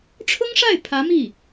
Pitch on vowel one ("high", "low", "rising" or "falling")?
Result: high